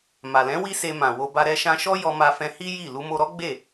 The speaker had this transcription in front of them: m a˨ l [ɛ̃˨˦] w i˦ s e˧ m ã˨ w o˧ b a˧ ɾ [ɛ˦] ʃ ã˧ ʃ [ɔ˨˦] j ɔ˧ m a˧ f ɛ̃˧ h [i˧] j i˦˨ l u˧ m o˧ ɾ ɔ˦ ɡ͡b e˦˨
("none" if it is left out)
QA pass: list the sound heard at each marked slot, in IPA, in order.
ɛ̃˨˦, ɛ˧, ɔ˦, i˦

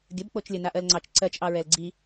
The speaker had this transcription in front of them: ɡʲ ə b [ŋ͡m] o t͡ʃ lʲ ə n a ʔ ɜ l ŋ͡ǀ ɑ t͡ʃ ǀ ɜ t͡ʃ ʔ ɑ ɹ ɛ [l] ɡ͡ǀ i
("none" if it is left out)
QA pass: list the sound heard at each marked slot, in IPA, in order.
k͡p, l

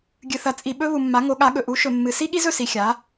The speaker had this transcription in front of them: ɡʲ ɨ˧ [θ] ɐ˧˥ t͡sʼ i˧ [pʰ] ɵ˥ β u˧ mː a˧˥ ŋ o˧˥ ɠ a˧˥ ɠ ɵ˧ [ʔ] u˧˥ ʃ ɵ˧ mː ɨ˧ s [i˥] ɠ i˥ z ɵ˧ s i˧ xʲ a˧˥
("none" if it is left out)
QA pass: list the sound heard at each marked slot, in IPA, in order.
θ, ɓ, ʔ, i˥

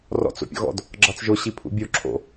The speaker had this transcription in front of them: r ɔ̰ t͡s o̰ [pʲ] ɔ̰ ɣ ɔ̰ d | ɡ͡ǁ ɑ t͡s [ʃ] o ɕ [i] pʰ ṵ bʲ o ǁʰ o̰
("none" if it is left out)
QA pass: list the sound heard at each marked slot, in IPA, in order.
pʲ, ʒ, i

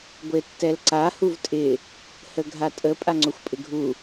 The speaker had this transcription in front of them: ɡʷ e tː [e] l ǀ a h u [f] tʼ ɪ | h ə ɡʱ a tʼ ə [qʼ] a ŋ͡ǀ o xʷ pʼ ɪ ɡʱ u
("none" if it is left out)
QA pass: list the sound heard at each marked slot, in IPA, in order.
ɛ, v, pʼ

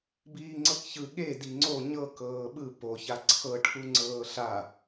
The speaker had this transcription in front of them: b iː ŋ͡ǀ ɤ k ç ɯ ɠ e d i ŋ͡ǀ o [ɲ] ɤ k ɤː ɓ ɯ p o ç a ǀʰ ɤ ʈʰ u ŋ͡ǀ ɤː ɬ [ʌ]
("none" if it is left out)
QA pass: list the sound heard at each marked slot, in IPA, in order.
ɲ, a

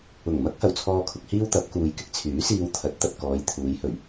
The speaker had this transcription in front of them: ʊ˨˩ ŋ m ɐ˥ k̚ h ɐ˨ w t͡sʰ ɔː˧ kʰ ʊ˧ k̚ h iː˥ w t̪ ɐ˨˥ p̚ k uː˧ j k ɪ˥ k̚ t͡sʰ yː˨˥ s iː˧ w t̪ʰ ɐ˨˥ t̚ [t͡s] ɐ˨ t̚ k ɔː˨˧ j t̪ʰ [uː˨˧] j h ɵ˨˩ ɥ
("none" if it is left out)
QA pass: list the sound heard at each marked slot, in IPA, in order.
t̪, uː˨˧

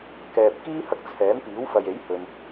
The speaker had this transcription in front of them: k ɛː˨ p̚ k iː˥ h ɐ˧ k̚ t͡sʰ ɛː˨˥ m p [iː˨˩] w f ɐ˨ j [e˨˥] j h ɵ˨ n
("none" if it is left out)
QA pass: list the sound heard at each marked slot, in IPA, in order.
iː˨˥, e˨˥

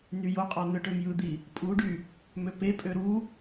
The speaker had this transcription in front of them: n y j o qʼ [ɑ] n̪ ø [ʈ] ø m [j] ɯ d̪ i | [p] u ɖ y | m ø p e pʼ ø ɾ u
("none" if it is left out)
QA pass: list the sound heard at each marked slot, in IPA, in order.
ɑ, ʈ, j, pʼ

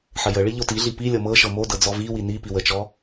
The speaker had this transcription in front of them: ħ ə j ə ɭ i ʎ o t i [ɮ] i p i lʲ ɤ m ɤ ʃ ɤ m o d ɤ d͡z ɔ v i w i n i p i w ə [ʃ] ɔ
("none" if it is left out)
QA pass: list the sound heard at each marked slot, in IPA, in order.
ɮ, t͡ʃ

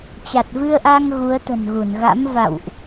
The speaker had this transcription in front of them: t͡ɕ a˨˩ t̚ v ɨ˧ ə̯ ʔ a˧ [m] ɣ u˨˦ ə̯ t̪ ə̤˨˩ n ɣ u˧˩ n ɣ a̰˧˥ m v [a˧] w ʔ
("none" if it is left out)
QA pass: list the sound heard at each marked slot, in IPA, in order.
ŋ, a̰˧˨

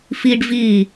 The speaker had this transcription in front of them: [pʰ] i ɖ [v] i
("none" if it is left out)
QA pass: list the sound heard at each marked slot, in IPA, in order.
f, v

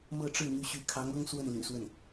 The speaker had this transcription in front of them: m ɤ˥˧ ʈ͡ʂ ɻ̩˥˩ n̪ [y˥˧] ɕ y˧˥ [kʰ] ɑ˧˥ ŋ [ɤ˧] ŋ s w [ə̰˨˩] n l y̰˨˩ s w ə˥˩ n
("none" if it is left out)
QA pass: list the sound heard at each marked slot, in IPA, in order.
y˧˥, kʰ, ɤ˥, ə˥˩

